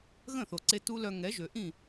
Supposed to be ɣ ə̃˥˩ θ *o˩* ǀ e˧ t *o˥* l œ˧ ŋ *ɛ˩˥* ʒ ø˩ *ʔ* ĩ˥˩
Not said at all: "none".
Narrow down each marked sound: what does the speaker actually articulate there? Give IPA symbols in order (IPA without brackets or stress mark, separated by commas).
o˩, u˥, ɛ˩˥, ʔ